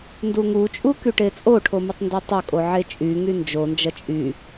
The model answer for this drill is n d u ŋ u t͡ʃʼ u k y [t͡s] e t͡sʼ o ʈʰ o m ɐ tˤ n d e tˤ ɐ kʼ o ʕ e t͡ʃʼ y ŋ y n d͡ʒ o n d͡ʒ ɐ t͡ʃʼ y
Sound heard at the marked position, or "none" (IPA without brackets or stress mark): ʈ